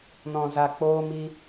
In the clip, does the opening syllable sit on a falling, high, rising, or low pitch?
low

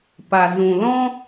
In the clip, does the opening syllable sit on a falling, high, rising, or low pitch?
low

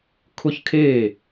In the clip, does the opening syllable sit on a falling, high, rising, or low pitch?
falling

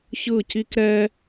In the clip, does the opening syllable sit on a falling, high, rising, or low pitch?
falling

